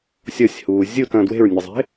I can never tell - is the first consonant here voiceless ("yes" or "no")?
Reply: yes